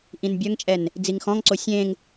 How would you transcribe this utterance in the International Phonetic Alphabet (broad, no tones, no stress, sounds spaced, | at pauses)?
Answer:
ʔ ĩ n bʲ œ ŋ t͡ʃʼ ɛ n | d͡z i ŋ x ɔ̃ ŋ ǀ o sʲ ẽ ŋ